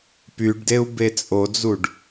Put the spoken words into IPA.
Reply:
p y ɖ d e u̯ b e t͡sʼ o d͡z u ɖ

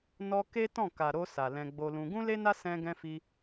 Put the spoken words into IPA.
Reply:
n ɔ˧ k e˦ t ɔ̃˦˨ k a˨ ɾ o˧ s a˨ l ɛ̃˧ ɡ͡b o˧ l ũ˧ ɡ ũ˦ l e˦ n a˦ s ɛ̃˧ ɡ ɛ̃˧ f i˧

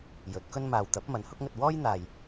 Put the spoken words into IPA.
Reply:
j ɵ˨˥ t̚ k ɵ˥ n m aː˨ w t̪ ɐ˨˥ p̚ m ɐ˨˥ n h ʊ˧ k̚ ŋ ɵ˨ t̚ w ɔː˥ j n̪ aː˨ j

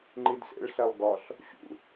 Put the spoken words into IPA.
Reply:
ŋ͡ǃ i d s ḛ ɭ ɬ æ lˠ ɡ ɒ ɬ | ɕ ṵ

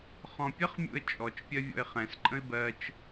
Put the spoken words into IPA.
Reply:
χ ɔ̃ pʲ ə χ mʲ ṵ ə̯ t͡ʃʼ ɔ t͡ʃ pʲ ɜ vʲ ɔ̰ ɪ̯ χ ɛ̃ s ǃʼ ə̃ ɪ̯ b ɜ t͡ʃ

